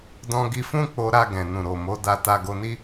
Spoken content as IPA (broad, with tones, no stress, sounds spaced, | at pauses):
d ɔ̃˧ ɡ i˧ f ũ˦ k͡p o˧ ɾ a˧ ɡ ɛ̃˨ n ũ˨ ɾ o˨ m o˨˦ d a˧ t a˧ ɡ o˧ n i˦